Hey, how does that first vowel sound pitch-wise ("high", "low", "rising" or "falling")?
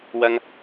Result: high